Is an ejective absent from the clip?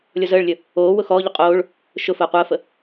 no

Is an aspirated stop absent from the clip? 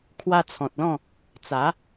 no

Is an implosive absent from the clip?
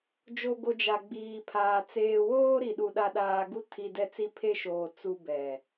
no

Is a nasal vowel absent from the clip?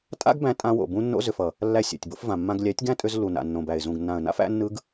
no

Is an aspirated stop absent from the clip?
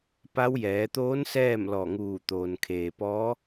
no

